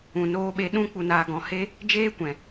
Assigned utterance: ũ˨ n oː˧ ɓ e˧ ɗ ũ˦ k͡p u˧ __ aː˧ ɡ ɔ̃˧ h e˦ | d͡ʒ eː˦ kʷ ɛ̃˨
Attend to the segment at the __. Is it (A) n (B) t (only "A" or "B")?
A